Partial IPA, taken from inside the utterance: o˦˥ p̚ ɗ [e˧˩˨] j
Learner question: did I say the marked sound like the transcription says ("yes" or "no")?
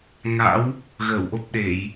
yes